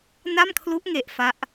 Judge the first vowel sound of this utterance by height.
low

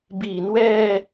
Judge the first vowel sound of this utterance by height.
high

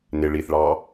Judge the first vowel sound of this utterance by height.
high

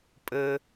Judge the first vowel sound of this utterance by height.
mid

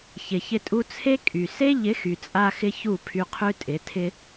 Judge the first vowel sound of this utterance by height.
high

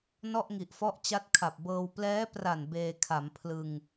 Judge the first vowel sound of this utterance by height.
mid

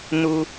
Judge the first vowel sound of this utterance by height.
high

